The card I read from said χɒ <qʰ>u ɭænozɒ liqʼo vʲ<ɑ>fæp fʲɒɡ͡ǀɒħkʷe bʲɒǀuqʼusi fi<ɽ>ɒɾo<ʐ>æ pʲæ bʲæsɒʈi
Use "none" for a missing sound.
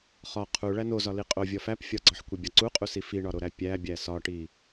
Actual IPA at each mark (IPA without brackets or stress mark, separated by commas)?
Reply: qʰ, ɒ, ɳ, ɾ